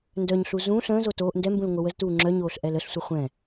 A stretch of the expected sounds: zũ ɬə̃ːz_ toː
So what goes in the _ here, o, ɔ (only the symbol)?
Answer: o